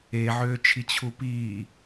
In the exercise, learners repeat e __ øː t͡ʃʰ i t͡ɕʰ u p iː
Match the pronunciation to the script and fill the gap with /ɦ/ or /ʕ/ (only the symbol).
ʕ